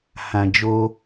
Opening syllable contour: low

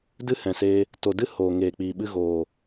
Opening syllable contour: high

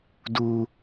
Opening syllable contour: high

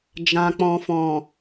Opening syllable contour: low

